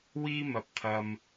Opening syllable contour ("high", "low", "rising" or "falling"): high